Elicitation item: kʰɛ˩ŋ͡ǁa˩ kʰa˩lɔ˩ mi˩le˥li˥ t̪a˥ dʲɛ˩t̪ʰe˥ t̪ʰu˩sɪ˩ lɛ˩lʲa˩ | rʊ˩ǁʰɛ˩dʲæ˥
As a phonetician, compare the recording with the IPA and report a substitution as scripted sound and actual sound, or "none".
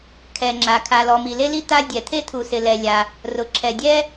æ˥ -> ɛ˥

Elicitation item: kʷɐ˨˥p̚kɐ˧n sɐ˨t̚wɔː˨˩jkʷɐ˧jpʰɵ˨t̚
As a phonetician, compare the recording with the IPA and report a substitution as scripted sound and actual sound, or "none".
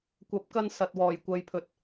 none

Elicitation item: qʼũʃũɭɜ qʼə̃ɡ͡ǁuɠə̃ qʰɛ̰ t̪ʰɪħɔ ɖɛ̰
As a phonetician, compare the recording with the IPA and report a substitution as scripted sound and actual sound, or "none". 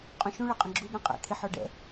qʰ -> qʼ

